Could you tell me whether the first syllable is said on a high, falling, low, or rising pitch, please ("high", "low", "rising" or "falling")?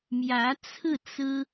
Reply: rising